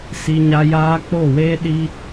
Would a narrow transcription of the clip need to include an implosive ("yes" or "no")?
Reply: yes